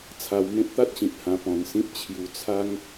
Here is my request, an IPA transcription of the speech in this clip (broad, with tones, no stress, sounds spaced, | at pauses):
t͡sʰ a˧ w m ẽ˦ p̚ t̪ a˦ t̚ ɕ ĩ˨ t̚ h ã˧ p ɔ̃˧ n s ĩ˦ p̚ t͡ɕʰ j u˧ t͡sʰ a˦ ŋ